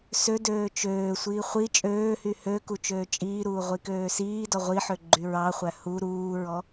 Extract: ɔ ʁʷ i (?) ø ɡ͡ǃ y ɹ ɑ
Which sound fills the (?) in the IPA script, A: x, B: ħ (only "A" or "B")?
B